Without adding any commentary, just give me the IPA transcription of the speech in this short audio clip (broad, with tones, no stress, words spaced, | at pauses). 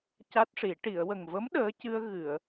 ca˦˥t̚ʂi˨˩˦ ʈi˨˩˨ə̯wə˨˩ŋvə˧˥m ɗəː˧˥ cɨ˧ə̯ ɣɨ˨˩˨ə̯